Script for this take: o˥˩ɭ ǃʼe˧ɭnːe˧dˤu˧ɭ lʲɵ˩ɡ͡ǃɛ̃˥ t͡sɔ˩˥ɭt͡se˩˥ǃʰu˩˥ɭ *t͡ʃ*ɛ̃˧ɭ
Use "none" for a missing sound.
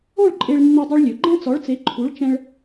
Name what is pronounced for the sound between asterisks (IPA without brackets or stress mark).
t͡ʃ